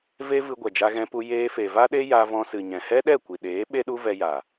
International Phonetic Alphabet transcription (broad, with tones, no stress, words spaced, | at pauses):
ve˦ vɨ˧ɡʷɛ˨d͡ʒa˧ ɣɛ̃˧pu˧ jeː˧fe˨va˦ɗe˦ ja˧vɔ̃˧sɨ˨ ɲɛ̃˨hɛ˦ɗɛ˦˨kʷi˨ ɗeː˨˦ ɓe˦ɗu˦vɛ˧ja˨